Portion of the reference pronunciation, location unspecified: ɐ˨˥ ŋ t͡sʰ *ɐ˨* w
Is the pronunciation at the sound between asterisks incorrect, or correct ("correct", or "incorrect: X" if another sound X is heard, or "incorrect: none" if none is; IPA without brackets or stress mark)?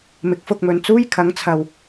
correct